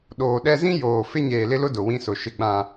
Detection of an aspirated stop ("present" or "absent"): absent